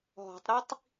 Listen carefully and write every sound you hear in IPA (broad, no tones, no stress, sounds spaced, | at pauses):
ɦ ɔ̤ tˤ ɾ i tˤ